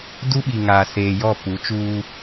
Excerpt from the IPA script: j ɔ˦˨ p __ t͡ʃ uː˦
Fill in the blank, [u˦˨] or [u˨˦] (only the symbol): u˨˦